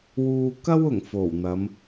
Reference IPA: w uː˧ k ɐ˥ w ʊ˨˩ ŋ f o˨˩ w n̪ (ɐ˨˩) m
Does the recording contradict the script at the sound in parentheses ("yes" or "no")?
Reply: yes